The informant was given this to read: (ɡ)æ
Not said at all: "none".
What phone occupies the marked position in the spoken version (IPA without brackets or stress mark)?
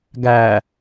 ɡ